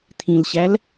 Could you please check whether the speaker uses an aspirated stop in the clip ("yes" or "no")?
yes